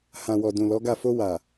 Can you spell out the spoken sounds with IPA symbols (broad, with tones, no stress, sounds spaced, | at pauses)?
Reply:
h ã˨ w ɔ˨ d ũ˨ l ɔ˨˦ ɡ a˦˨ f o˧ w a˨